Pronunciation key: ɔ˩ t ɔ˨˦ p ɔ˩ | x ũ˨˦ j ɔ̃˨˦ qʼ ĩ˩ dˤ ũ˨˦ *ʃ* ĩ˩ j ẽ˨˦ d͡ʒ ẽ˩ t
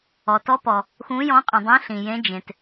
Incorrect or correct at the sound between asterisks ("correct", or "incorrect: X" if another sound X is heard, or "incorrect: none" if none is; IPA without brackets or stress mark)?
incorrect: ɬ